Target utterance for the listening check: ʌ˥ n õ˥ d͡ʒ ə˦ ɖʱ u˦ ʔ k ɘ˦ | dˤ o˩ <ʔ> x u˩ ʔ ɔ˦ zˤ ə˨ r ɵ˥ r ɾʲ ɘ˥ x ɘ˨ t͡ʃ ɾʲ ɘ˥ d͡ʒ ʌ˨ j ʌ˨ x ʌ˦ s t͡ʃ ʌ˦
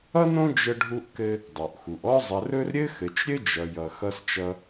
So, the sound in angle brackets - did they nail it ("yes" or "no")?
yes